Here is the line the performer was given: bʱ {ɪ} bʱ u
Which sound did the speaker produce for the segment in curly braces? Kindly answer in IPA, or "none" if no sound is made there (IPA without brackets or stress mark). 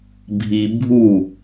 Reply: i